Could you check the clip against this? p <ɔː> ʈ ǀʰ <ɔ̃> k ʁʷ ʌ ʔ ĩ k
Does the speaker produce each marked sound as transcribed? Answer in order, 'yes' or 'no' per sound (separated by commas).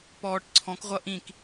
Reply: yes, yes